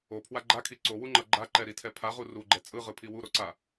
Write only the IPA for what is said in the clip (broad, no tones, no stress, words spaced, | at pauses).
opʰwa ɡ͡ǃakʰi ǀowuŋ͡ǃʌ ɡ͡ǃaǃɛɾitʰɛ pʰaʁu ruɡ͡ǃɛ t͡sʼɯʁɯpʰi wuɾoǀa